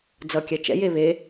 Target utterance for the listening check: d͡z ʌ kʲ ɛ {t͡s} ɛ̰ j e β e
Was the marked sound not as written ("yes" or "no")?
yes